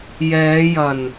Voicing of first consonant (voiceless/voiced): voiced